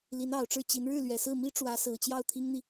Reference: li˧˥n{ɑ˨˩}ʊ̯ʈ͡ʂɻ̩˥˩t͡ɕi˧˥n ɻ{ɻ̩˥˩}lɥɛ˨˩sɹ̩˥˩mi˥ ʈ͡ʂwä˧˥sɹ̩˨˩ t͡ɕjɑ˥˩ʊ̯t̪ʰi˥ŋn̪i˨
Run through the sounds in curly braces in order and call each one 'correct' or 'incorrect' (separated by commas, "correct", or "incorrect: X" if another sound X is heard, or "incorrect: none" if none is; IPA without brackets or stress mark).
correct, correct